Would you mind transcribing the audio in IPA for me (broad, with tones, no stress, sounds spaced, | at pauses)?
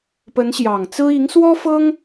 p ə˧˥ n ɕ j ɑ˨˩ ŋ t͡s ɹ̩˥ i˧˥ ŋ s w ɔ˥ f ɤ˥ ŋ